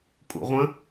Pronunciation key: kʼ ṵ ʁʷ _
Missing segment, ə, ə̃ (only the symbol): ə̃